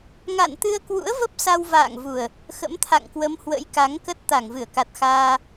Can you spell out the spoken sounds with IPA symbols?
ŋ a̰˧˨ n t̪ ɨ˧ ə̯ k w ṵ˧˥ ə̯ v ə˦˥ p̚ s a˧ w v a̰ː˧˨ ŋ v u˨˩ ə̯ | x ə̰˧˥ m t̪ʰ a̰˧˨ ŋ k w ə˨˦ m h w ə̰˧˥ j k a˨˦ ŋ k ə˦˥ t̚ t̪ a˧˩ ŋ v ɨ˧˩ ə̯ k a˨˩ t̚ x aː˧

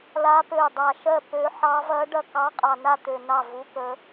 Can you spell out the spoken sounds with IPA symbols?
l a˧˥ p ø˧˩ dˤ a˧˩ ʃ ɜ˥˩ p ø˧˥ ħ ɑ˧˥ v ɐ˧˥ ɖ ɐ˥˩ k ɑ˧˥ qʼ ɑ˧˩ n a˥˩ t̪ ø˧˩ n ɑ˥˩ v u˧˥ k ə˧˥

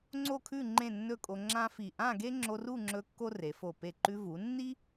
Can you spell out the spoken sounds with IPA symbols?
ŋ͡ǀ o˥˧ kʰ ʉ˥˧ ŋ͡ǃ ẽ˥˧ nː ɵ˥˧ kʼ o˧ ŋ͡ǁ ã˥ f i˧˩ ʔ ã˥˧ ɡ e˥ ŋ͡ǁ o˧ r u˥˧ ŋ͡ǁ ɵ˧ kː o˥ r e˩˧ f o˧˩ p e˧˩ ǃ ʉ˧ v u˩˧ nː i˥

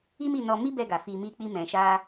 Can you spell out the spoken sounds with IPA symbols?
i˦ m i˦˨ n ɔ˧ m i˦ b ɛ˧ ɡ a˨ f i˧ m i˦ k͡p i˦ m ɛ̃˧ ʃ a˦

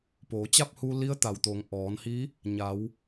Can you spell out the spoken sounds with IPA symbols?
p oː˩˧ t͡ɕ a˥˨ p̚ h u˧ l i˧˥ ə̯ t̪ a˩ w t̪ o˩˧ ŋ ʔ ɔː˩˧ n h i˧˥ | ɲ a˩˧ w

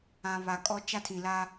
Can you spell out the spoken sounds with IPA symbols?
ã˨ β a˨ kʼ ɔ˦ t͡ʃ a˦ tʰ ĩ˨ l a˦

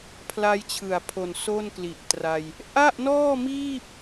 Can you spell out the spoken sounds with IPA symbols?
pʰ l a˦˥ j t͡ɕʰ ɯ˨˩ a̯ pʰ o˨˩ n s o˥˩ n k l i˨˩ ʔ t r a˧ j | ʔ a˥˩ ʔ n ɔː˥˩ m iː˥˩ p̚

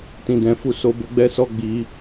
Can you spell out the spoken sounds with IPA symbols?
t ĩ˦ d ɛ̃˦ f u˦ s o˦ b o˦ ɡ͡b ɛ˦ s ɔ˦ ɡ͡b i˧

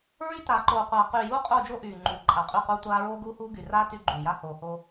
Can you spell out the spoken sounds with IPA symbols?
ɹ y˦ t aː˨ ǃ oː˨ qʷ aː˨ q yː˨ j uː˦ qʼ oː˦˨ d͡ʒ o˦ ʔ yː˨ ŋ͡ǃ u˨ ǃʼ a˨ qʼ y˦˨ q uː˦ tʷ aː˦ ɹ oː˦ ɡ uː˦ h uː˦ ɡ y˨ r aː˦ t y˦ ɡ͡ǃ yː˨ j a˦ h oː˨ h o˦

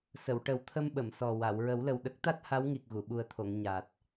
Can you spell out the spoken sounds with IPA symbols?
s ə˨˩˨ w ʈ ə˨˩˦ w t̪ʰ ə˧ m ɓ ə˨˩˨ m s ɔ˨˩ w a˨˩˨ w ɹ ə˨˩˦ w l ə˨˩ w ɗ ə˦˥ k̚ t̪ a˦˥ t̚ h a˧˥ w ŋ i˨˩ k̚ ɣ u˨˩˨ ɓ u˨˩ ə̯ t̪ʰ o˨˩˨ ŋ ɲ a˨˩ t̚

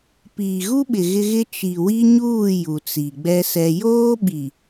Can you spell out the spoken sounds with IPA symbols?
p iː˨ ɣ u˦ ɓ ɪ˨ ɣ ɪ˦ ɣ ɪ˦ t͡ʃ i˨ w i˦ ɲ uː˦˨ j u˨ t͡s i˨ ɡ͡b ɛ˦ s ɛ˦ j oː˦ ɓ i˨

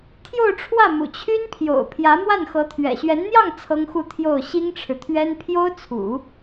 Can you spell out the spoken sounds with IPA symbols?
t̪ʰ j o˥˧ ʊ̯ ʈ͡ʂʰ w ä˥˩ m ṵ˨˩ t͡ɕʰ y˥ n pʰ j o̰˨˩ ʊ̯ pʰ j ä˧˥ m w a˥˩ n x ɤ˧˥ t̪ʰ ɥ ɛ̰˨˩ ɕ ɥ ɛ˧˥ n n̪ j ɑ˥˩ ŋ t͡sʰ ɤ˥ ŋ x u˥˧ t̪ʰ j o˥˩ ʊ̯ ɕ i˥ ŋ ʈ͡ʂʰ ɻ̩˨ t̪ʰ ɥ ɛ˥ n pʰ j o˥ ʊ̯ t͡sʰ ṵ˨˩˦

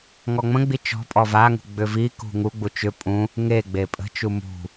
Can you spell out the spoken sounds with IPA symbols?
ŋ ɔ ŋ͡m ə̃ ɡ͡b i t͡ʃ ɔ̤ pʼ ɔ v a ŋ ṳ ɡ͡b ʏ v i k ṳ ŋ u ɡ͡b u t͡ʃ ʏ pʼ ũ | ŋ e ɡ͡b e pʼ ə̤ t͡ʃ u m ṳ

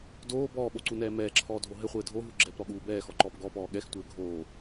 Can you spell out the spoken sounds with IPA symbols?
d oː b ɔː ɓ o ǀ u n ɛː m ɛː ǁʰ ɔː dʱ o ɦ ɘ χʷ ɘː dʱ o ɦ u ɡ͡ǁ ɛ p ɾ ɔ ɠ uː b ɛː x ɔ ǃ ɔː p ɡ ɔ p ɔː ɠ ɛ x tʷ ɘː ɡʱ oː

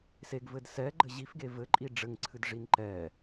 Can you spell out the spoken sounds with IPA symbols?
s e ɡ v ɘ d s ɛ ɡ͡ǃ ɘ ʑ i f ɡ e v ɘ ǃʼ i ɖ͡ʐ ɘ ŋ ǀʰ ɨ d ʐ i n ǃ ɛ

